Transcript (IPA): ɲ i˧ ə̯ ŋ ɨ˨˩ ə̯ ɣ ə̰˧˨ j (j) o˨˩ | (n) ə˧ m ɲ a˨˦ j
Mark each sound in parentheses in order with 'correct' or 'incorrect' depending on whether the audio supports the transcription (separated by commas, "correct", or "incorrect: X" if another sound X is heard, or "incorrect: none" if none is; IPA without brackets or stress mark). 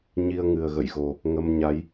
incorrect: ɣ, incorrect: ŋ